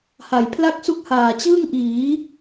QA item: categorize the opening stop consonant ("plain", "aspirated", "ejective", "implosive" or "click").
aspirated